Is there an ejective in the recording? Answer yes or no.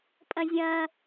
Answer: yes